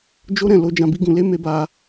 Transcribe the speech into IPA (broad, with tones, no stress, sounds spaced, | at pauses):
d͡ʒ o˦ ɾ ɛ̃˦˨ l o˧ d͡ʒ ã˨ b i˧ ɡ ũ˨ l e˧ m e˦ b a˧